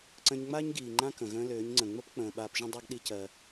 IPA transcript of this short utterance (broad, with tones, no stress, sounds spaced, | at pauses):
ǀ ə̃˧ ɲ ŋ͡m aː˦ ɲ ɡ iː˨ ŋ͡ǃ ã˦ k ə̃˨ ɣ ə̃ː˧ l øː˨˦ ɲ ŋ͡ǀ ə̃˨ ŋ͡m ə˦ p k͡p ə̃ː˨ ɓ aː˧ p ʒ ə̃˦ dˤ a˦ ɡ ɗ i˦ c ɜ˧